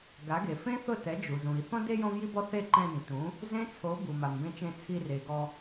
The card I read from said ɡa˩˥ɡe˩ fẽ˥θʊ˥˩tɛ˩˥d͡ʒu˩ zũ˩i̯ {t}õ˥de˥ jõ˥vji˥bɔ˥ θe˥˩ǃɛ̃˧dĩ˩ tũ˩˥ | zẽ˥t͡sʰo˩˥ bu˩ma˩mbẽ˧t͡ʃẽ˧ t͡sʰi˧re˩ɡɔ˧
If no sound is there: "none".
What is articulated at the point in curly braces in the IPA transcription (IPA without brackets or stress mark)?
θ